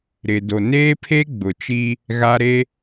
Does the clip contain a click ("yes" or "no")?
no